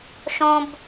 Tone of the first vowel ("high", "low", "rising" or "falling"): low